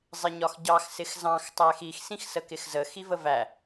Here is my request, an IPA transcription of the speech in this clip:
zˤ ɪ ɲ ɒ x ɟ ɑ x s ɪ x z ɑ̃ x tˤ æ x i x s ĩ x s ə k ɪ x z ə x i v ə v æ

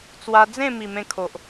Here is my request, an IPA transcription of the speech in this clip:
t͡s w a˧ d͡z ẽ˥˧ m i˨˩ m ẽ˧ kʰ o˨ ʔ

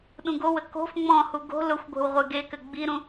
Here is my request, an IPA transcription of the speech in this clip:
ɗ ũ ɡ o w ə k o̤ f ŋ͡m ɔ̃ h u ɡ o̤ l ʊ xʷ ɡʷ e̤ w ʁʷ e ɡ e k ɘ ɡ͡b i ɾ ũ

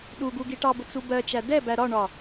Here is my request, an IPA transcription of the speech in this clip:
ɗ u ɡ u ɡ i ʈ ɑ b ʊ t͡s u b ɜ t͡ʃ æ d ɛ b æ ɾ ɒ ɳ ɒ

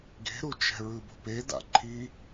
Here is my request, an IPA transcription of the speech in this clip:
ɡ e̤ ɾ u t͡ʃ ɛ̤ ɹ ɯ b o̤ p e d a̰ ǃʰ i

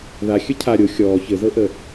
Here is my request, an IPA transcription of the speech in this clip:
ð a xʲ ə cʰ a ɾʲ o xʲ ɔː ç ɘ z ɤ ʔ ə

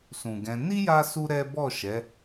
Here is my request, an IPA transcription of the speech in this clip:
s ũ˨ ɡ ɛ̃˧ n i˦ j a˦ s u˦ ɾ ɛ˦ b ɔ˦˨ ʃ ɛ˨˦

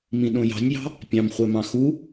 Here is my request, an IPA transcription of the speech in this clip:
m ĩ ɗ õ j ɑ̤ nʲ j ɑ̤ | pʲ ɑ̃ m χʷ ɛ m ɑ̃ x u

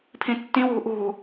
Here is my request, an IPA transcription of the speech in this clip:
pʰ ĩ tː ĩ w ṳ ʔ ṳ

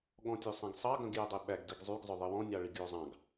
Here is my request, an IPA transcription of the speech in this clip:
ɠ ɔ̃ tʲ ø sˤ ɛ̃ ɡ sˤ ɑ ɡ œ̃ ɡ j œ dˤ e ɓ æ ɡ d i ɡ zˤ y ɡ zˤ œ ðˤ i w ɔ̃ nʲ ɑ ɭ i ɡ j o zˤ ɑ̃ ɡ

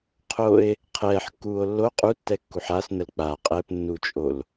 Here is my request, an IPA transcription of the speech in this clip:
qʰ o e̯ | qʰ ɛː ħ kː uː o̯ lː o qʼ u tː ɛ kː u ħ a s n ə l k͡p a qʼ ɛ p nː u t͡ʃʼ o l

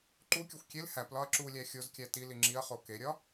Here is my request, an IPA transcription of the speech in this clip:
ǃ u kʲ o xʷ kʲ e l h æ p l ɒ ɐ̯ ǁ u lʲ æ xʲ o z kʲ æ t i l i ŋ͡ǁ i ɐ̯ χ o k e ɾʲ ɒ

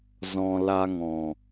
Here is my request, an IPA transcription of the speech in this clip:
z ɔ̃˧ l a˧ ŋ ɔ̃˨

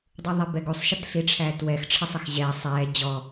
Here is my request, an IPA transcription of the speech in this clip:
dˤ ɯ ðˤ e b ɛ ɡ u sˤ ʃ ə t ɬ i ʈ͡ʂʰ æː t w ɛ x ʈ͡ʂʰ ə sˤ ə x ʑ ɛː sˤ ɛː d͡ʑ ɔ

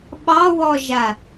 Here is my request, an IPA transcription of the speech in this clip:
ɓ ɑ w ɔ ʒ a

